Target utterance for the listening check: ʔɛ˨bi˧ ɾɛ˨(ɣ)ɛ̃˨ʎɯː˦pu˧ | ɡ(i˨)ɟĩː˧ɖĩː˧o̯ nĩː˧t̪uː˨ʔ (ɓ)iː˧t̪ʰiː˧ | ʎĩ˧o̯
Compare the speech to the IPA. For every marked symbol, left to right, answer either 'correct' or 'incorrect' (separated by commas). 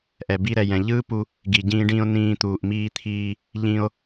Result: incorrect, correct, incorrect